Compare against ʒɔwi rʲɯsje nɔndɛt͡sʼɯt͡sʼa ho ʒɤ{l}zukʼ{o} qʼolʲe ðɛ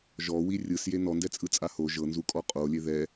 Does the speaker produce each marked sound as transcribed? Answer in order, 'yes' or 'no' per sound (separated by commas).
no, no